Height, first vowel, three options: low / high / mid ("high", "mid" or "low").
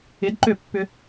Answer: high